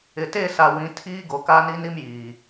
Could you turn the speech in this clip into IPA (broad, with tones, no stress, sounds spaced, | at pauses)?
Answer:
ɪ˨ t eː˦˨ s a˨ w ĩ˨˦ tʰ iː˦ ɡ o˨ k a˦ n i˦ n i˦ m j iː˨